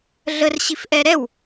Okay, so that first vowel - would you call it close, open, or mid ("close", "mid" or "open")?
mid